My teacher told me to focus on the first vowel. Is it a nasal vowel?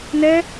no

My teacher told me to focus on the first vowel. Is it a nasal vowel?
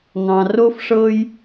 yes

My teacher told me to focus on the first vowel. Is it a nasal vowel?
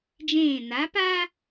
yes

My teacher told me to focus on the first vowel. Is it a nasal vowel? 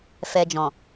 no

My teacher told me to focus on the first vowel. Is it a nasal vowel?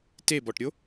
no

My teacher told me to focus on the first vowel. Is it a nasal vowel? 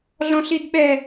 yes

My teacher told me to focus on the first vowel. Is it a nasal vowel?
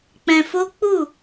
yes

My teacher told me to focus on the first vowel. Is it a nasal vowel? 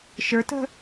no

